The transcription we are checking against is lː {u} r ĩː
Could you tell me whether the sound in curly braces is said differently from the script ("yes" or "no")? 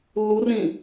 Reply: no